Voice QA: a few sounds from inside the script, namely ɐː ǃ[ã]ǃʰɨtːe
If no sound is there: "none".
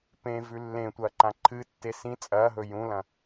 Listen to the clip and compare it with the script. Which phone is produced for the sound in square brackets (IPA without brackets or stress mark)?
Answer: ã